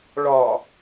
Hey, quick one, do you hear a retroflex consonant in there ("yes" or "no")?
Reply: yes